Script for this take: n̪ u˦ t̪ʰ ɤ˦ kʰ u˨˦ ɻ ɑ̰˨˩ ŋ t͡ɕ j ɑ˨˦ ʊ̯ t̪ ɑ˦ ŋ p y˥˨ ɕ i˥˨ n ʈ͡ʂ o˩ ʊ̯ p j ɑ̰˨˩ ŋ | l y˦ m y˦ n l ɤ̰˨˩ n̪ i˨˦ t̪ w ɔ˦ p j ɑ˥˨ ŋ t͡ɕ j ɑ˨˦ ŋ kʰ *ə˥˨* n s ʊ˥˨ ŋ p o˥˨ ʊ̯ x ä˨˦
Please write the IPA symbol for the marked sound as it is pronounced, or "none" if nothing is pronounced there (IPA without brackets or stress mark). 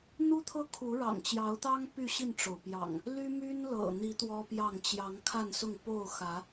a˥˨